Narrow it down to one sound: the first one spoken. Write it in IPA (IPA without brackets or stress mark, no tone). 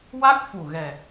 w